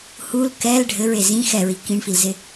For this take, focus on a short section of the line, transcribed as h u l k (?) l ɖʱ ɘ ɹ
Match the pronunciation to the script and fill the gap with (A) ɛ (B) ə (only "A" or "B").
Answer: A